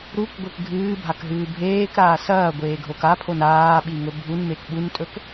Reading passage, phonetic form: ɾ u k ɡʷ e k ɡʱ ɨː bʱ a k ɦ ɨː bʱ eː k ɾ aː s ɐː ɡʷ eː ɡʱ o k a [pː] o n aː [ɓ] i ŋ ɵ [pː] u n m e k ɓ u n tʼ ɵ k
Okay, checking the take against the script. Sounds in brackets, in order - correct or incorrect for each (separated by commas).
incorrect, correct, incorrect